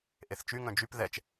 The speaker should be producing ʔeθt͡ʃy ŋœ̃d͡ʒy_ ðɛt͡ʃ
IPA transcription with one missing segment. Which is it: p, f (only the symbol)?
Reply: p